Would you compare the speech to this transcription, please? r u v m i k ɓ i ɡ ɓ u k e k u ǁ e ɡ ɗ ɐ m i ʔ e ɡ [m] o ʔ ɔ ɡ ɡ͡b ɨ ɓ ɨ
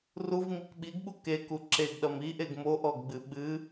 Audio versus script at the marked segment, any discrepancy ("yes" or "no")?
no